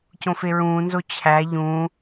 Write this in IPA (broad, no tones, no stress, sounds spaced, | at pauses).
c õ f e ɹ ũː n z o t͡ɕʰ æ ʎ ũː